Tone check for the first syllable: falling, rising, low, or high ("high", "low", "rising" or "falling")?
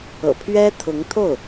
low